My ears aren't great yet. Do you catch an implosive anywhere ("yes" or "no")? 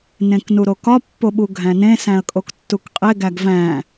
yes